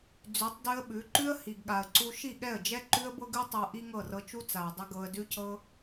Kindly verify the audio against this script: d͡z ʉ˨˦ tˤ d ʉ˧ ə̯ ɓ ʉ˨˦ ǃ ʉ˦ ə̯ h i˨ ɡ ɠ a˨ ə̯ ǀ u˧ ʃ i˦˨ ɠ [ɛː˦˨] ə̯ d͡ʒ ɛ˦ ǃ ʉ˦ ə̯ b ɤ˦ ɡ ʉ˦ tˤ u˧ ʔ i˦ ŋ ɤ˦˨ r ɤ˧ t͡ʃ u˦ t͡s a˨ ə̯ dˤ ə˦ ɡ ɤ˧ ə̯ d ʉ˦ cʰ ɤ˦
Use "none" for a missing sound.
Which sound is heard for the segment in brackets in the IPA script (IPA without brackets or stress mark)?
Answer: ɛ˦˨